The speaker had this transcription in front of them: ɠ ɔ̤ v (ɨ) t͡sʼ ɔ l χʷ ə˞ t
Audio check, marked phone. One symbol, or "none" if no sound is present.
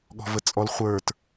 ə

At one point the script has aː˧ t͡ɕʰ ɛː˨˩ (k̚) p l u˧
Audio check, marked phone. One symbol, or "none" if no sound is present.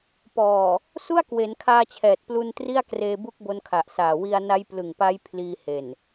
t̚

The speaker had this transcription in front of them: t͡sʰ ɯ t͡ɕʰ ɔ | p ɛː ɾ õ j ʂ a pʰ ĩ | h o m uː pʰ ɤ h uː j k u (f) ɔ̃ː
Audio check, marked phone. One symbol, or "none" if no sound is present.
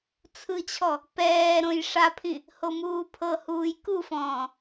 f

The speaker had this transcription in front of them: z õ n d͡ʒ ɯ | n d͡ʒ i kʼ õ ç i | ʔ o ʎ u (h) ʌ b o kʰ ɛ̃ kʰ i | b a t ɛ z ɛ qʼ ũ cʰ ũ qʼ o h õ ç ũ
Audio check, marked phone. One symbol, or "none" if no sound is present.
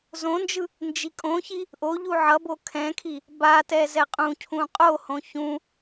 ʕ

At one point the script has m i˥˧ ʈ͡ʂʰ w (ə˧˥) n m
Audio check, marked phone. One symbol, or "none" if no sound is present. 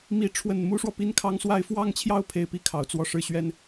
ə˥˩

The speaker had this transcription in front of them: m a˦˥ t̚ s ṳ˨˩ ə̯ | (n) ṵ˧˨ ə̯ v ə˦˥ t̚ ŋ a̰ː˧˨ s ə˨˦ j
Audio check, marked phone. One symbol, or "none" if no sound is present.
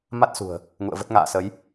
ŋ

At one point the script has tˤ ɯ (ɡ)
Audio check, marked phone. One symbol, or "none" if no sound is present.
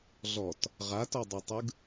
ɡ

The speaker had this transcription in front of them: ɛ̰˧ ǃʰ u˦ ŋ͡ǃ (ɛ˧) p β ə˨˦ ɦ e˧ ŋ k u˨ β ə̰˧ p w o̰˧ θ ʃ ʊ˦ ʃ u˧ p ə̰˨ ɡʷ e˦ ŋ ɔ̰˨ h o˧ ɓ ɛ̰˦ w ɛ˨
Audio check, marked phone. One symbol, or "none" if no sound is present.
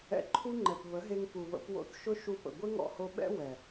ɛ˨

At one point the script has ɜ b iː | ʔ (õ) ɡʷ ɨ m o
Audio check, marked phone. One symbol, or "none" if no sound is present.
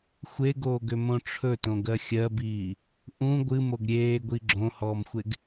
ũ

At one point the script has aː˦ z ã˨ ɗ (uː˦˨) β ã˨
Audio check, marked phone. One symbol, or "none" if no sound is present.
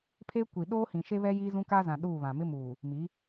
uː˦˨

